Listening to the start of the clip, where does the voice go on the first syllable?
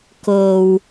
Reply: low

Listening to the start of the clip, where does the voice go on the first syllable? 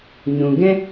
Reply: low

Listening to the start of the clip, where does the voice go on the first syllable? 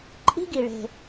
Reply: high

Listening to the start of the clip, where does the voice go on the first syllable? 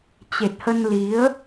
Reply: low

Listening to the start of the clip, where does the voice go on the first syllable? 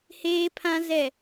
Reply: high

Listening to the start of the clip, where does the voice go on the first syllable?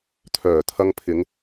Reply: low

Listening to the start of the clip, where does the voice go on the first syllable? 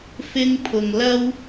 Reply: high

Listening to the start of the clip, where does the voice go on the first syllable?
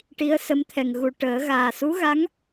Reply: rising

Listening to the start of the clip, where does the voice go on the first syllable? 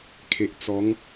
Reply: low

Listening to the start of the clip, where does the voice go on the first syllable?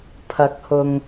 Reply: rising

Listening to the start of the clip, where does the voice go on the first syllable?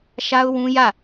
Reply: high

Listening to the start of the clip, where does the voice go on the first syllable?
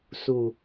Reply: low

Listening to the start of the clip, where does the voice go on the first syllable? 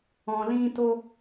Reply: low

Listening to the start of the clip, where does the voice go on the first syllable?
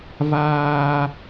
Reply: high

